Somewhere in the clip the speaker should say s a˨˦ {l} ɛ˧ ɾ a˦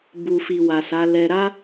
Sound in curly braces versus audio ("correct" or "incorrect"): correct